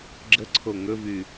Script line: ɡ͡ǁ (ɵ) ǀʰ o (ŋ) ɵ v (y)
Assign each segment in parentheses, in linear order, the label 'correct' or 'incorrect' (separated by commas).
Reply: incorrect, correct, correct